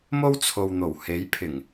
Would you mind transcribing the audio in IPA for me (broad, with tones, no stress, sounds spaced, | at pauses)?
m o˥ w t͡sʰ o˨ w n̪ o˨˩ w h e˨˥ j pʰ ɪ˨˩ ŋ